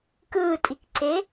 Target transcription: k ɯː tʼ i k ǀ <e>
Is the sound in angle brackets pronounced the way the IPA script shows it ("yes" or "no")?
yes